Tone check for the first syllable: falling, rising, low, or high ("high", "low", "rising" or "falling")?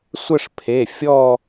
falling